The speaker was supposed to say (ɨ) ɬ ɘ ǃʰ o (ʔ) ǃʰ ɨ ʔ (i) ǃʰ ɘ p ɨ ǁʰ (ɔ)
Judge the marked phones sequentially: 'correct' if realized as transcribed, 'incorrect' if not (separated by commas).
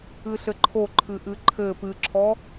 correct, incorrect, incorrect, correct